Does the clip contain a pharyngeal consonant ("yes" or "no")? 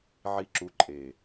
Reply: yes